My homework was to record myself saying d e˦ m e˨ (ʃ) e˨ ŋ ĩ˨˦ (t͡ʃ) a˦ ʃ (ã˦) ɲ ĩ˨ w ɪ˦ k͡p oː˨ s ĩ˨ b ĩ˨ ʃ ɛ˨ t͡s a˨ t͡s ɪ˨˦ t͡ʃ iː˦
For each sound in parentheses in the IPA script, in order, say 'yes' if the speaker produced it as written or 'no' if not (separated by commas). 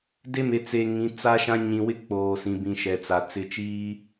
no, no, yes